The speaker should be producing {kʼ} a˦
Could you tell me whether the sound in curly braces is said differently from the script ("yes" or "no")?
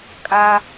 no